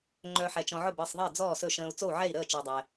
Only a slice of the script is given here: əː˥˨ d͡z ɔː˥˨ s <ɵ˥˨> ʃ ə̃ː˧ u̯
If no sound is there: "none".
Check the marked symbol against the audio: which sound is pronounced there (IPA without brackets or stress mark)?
ɵ˥˨